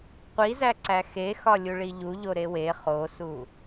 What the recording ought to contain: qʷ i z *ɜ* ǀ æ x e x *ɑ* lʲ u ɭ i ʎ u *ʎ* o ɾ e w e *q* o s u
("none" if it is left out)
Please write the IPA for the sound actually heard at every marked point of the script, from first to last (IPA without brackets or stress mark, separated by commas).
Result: æ, ɒ, ʎ, χ